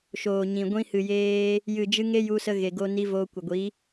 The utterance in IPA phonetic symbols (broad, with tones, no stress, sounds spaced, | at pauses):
ʃ oː˨ ɲ ĩ˨ ɡʷ ĩ˧ h ɨ˨ j eː˧ | j ɨ˨ d͡ʒ ɨ˧ ŋ e˦ j u˧ s ə˧ ɣ e˨ ɡ o˧ n i˧ v oː˧ kʷ ə˨ ɡʷ i˨˦